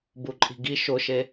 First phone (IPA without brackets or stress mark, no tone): b